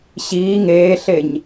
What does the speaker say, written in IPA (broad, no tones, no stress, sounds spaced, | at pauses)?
ɕ iː ŋ eː ɬ e ɲ